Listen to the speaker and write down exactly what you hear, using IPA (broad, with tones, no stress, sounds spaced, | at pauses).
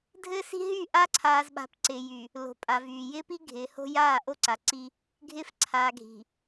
dʱ ɘː˦ s i̤˦ ɦ yː˦˨ ʔ a˦ ǀʰ aː˨ z ɓ a̤˨˦ p ǀ ɪː˨ j y˨ | l o̤˨ pʼ a˨ v yː˨ j ɪː˦ p i˦ ɡʱ ɪː˨ h o̤˦ j aː˦˨ ʔ o˦ ǀ a˨ ǀ i˦ | ɡʱ ɪː˦ f ǀʰ aː˨ ɡʱ i̤˨